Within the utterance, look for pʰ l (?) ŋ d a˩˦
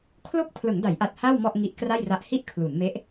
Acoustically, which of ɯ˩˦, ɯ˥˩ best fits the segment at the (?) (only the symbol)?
ɯ˩˦